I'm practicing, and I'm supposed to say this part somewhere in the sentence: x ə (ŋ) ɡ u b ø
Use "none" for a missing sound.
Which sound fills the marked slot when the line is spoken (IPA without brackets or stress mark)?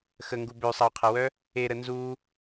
ŋ